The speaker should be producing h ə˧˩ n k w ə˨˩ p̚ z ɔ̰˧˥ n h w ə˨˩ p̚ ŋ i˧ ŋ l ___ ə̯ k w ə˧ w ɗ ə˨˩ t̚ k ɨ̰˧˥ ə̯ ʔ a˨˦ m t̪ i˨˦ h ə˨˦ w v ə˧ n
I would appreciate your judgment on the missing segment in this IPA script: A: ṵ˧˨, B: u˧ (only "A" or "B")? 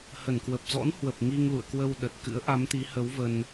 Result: A